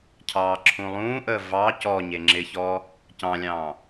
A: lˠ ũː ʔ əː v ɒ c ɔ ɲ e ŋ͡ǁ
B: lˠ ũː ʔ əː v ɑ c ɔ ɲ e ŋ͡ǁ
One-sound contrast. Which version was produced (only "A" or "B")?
B